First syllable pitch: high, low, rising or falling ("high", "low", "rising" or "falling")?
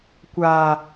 low